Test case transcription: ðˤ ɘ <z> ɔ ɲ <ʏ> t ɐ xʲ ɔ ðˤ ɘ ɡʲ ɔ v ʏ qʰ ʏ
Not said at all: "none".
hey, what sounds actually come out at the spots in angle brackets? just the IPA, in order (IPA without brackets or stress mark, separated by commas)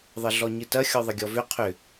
ɮ, ɨ